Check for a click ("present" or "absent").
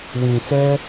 absent